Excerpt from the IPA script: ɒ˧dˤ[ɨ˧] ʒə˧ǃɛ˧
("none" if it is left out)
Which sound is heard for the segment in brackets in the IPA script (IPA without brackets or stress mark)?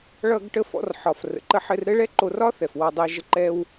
ɛ˧